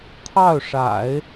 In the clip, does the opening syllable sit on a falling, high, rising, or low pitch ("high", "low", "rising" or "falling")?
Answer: falling